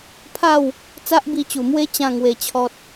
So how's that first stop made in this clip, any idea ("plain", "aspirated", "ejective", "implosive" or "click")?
aspirated